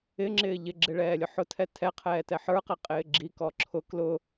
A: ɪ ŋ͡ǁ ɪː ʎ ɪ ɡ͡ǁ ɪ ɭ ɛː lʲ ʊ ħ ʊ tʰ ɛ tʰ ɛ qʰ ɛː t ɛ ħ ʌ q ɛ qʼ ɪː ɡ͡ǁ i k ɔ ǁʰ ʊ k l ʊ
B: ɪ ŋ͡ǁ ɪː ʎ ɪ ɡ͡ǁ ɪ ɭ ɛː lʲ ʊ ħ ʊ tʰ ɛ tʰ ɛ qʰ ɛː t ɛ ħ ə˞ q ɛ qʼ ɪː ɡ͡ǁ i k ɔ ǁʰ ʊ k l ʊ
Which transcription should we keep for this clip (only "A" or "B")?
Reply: B